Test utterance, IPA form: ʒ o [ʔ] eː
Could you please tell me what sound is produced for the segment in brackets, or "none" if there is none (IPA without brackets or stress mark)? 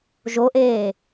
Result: ʔ